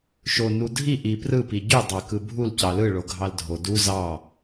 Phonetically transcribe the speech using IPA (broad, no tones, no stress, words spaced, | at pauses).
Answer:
ʃo nudʱi ʔi prɯ piɟy dˤɑkɯbʱul cɑlɯ ɭoɡʱɑldʱo du zɑ